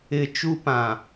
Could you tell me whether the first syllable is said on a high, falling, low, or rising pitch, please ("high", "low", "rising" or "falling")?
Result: low